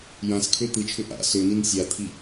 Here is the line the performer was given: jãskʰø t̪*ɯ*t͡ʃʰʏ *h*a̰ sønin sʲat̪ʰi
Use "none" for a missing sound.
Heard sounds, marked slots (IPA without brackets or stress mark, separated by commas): ɯ, ʔ